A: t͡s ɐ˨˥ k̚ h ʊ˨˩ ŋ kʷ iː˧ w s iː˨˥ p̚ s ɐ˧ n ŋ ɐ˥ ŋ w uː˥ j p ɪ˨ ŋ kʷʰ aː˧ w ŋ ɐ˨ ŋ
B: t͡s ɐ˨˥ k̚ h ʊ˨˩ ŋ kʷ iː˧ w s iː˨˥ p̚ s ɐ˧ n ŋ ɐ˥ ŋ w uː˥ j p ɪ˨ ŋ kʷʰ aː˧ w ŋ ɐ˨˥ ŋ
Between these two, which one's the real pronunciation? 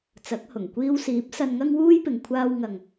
A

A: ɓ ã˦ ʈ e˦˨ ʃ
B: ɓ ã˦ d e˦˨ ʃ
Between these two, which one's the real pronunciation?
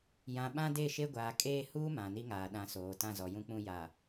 B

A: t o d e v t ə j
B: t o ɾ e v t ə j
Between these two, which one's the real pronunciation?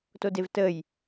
A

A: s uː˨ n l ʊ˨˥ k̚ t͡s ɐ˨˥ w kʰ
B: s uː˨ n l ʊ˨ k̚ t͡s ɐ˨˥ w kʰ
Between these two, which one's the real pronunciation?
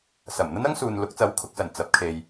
A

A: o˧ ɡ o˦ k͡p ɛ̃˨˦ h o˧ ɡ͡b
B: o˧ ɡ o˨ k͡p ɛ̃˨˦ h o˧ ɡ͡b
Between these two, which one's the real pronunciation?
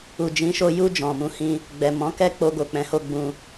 B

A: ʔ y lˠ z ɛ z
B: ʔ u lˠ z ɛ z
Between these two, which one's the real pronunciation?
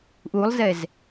B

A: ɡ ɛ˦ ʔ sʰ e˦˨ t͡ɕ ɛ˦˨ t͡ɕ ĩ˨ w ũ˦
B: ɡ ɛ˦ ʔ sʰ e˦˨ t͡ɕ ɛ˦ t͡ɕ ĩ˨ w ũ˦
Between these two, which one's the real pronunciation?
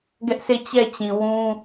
A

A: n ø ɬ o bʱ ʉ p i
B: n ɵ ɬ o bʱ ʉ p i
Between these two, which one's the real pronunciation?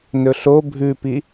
B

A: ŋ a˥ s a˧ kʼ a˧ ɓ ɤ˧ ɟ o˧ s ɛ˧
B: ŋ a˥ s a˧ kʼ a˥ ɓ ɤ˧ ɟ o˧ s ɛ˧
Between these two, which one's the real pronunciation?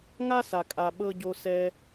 A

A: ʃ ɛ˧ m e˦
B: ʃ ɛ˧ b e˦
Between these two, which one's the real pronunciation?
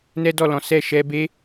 B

